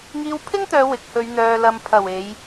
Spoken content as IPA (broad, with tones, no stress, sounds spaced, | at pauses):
ŋ iː˧ w pʰ ɪ˥ ŋ t̪ œː˨˧ w ɪ˨ k̚ h ɵ˨˧ ɥ n̪ œː˨ l ɐ˨ m pʰ ɐ˨˩ w e˨˧ j